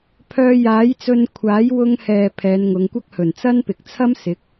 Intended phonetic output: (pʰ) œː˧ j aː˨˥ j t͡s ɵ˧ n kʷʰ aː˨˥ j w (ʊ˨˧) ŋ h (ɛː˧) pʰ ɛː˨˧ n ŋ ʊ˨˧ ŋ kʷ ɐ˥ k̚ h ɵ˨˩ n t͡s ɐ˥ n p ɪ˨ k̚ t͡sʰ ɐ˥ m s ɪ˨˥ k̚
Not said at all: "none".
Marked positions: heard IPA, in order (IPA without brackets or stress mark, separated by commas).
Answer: pʰ, ʊ˧, ɛː˨